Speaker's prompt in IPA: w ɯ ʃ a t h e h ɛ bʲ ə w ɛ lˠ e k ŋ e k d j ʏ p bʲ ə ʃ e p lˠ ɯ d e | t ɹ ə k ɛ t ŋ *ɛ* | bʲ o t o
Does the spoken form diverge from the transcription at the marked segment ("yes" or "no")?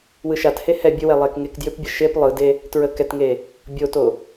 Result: yes